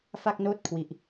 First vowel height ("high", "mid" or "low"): low